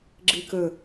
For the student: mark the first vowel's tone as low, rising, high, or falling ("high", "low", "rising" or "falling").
low